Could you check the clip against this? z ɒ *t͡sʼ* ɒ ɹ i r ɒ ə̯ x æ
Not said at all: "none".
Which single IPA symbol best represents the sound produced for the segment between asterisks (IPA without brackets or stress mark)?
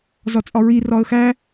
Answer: t͡sʼ